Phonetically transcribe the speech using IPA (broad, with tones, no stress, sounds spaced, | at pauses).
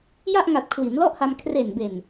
j a˥˩ ʔ ŋ a˨˩ t̚ kʰ w i˩˦ n l ɔ˥˩ ʔ h a˧ m kʰ r e˨˩ n b e˨˩ n